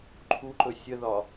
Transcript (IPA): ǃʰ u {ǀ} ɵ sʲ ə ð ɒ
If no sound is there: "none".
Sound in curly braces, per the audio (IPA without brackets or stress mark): ǃ